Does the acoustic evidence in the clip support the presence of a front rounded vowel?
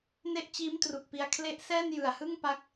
no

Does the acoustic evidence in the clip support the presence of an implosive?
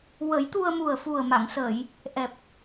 no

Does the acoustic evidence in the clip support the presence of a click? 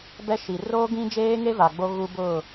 no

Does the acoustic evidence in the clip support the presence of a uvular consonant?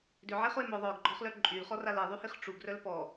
yes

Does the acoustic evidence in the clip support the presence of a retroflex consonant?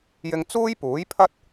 no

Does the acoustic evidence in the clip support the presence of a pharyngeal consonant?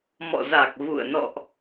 no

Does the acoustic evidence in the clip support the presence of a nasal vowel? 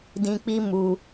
yes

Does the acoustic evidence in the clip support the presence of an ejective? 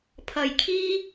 no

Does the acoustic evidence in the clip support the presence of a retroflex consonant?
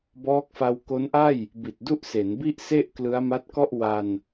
no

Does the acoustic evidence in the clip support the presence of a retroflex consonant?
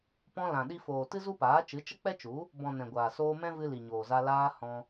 no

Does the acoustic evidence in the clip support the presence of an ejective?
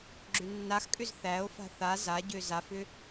yes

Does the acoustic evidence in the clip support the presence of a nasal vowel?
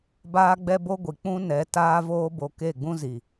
yes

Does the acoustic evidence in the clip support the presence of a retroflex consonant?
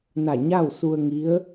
no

